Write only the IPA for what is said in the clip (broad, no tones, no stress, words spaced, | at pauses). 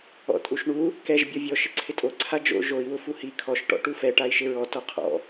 ɔ̰tʼuʃɳu | kɛʒ bʲɔvʲɔ ʃɪǀʰɪtʼo ǀʰad͡ʒo̰ ʒoi̯ wʊfuhi kʰɔʃ ʈɔ̰ʈufɛ ʈai̯ʃɪɹɔ tɔqʰɔ̰